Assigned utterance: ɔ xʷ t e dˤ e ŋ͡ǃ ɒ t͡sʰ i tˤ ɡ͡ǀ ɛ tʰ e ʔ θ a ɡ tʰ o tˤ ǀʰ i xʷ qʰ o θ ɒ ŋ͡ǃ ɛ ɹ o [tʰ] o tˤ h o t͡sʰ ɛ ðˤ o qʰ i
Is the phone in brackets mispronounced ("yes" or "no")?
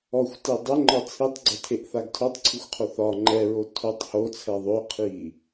no